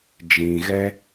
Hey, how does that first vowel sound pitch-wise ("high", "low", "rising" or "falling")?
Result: low